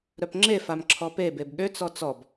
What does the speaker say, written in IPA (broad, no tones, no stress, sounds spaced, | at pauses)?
ɾ œ p ŋ͡ǁ e f a m ǁʰ ɔ p e b e b ɠ ø t͡s ɔ t͡s ɔ b